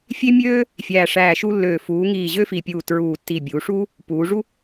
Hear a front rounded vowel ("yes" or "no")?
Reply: yes